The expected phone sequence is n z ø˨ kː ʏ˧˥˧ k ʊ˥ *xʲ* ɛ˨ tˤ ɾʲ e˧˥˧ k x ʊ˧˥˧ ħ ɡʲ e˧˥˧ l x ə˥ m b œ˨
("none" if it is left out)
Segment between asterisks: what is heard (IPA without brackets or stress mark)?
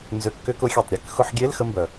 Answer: xʲ